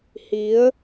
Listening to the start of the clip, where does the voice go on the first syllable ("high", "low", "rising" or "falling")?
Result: rising